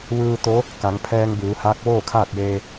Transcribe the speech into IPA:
ʋɯː˧t̪o˧˥ | ka˩˧ŋpʰɛː˧ŋbɯː˩˧haː˧˥k̚ ʋoː˥˨kʰaː˥˨t̚jeː˧

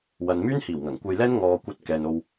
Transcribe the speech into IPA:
wɐ˨nmyː˥nhiː˨˩w ŋɐ˨˩ŋkʷɐ˧jlɛː˥n ŋɔː˨ kʷɐ˧t̚ kɛː˨n o˨w

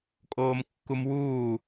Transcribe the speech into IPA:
kʼoːmkːumwuː

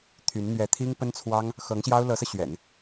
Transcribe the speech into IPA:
t̪ʰy˧˥n n̪ɥɛ˧˥t̪ʰi˥ŋpə˥nt͡sʰwɑ˥ŋ | xɤ˧˥ŋɕjɑ˥ʊ̯ lɤ˧˥sɤ˧ɕɥɛ̰˨˩˦n

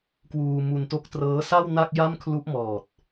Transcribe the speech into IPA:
kwuː˧ mu˧n to˦˥k̚trɤː˦˥sa˥˩w na˥˩k̚ja˥˩m kʰlu˦˥ʔmɔː˨˩t̚

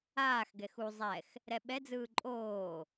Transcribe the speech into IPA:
aːx ɡɛxu zˤɛx | ɾɛɓɛd͡zɯː ǃʼoː

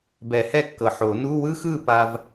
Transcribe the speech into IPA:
bɛ˨˩˦hɛ˥˨kːɤ˨˩ ħo˨˩˦nu˧˥˧ wɯ˥xɯ˥˨ pa˥v

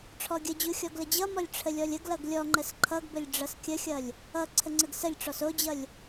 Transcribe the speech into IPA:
ʈ͡ʂʰɔɡʲəd͡ʑu xʲɔɡləd͡ʑʌmɔlʲ ʈ͡ʂʰəlʲɔlʲəɡlʌɡ lʲɔŋ͡ǃəs ǃʰʌɡbəlʲ ɖ͡ʐʌskʲəxʲʌlʲ | ʌ ǀʰəŋ͡ǀəɡsəlʲʈ͡ʂɔs od͡ʑʌlʲ

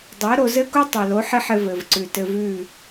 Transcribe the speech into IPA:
dˤɜ˨˦ɾo˧zɘ˦ku˦ tˤɜ˨lo˨˦ħɘ˦ħɘ˧ vɘ˨vǀʉ˨ tɘ˧vʉ˦˨

